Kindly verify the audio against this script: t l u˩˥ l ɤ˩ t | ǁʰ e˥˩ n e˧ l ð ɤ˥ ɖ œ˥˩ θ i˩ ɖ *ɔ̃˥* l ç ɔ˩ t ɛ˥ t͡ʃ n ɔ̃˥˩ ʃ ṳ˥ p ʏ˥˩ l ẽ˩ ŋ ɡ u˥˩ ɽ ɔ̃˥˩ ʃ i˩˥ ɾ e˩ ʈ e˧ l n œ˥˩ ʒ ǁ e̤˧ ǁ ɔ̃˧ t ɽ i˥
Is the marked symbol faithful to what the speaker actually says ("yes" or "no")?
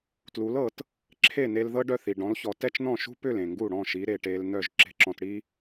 no